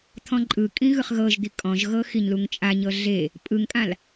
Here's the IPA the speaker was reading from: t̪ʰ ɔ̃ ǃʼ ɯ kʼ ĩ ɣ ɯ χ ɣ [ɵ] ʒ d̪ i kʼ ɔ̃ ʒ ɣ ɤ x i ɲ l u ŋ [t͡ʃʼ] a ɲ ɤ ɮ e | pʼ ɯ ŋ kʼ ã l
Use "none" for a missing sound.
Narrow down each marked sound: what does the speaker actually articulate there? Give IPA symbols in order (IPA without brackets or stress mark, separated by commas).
ɤ, t͡ʃʼ